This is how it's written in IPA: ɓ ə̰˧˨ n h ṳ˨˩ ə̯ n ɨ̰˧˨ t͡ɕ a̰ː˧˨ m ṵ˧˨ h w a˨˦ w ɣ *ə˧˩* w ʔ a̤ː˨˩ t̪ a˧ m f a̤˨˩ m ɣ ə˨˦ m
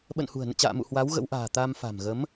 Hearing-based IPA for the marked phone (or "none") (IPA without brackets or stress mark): ə̰˧˥